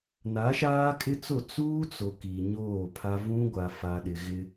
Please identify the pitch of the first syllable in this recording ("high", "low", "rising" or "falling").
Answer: rising